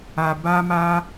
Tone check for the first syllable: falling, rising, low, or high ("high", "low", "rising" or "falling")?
low